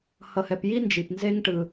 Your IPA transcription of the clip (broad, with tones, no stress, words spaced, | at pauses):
hʌ˨hɛ˨pji˥nd͡ʒi˩p nze˥ŋʈɯ˨